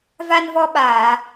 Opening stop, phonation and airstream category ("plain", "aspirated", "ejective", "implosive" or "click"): implosive